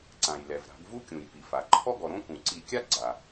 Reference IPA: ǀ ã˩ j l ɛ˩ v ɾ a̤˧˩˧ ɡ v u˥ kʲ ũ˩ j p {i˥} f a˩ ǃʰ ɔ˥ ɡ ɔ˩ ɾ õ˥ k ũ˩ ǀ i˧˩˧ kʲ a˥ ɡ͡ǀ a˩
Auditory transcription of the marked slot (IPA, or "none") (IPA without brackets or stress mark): i˩